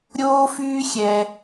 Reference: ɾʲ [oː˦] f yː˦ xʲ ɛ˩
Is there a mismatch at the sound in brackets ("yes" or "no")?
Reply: no